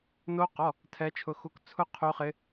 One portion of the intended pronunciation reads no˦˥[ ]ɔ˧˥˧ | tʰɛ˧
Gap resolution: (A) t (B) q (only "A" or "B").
B